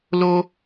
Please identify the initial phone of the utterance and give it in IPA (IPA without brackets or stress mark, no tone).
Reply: l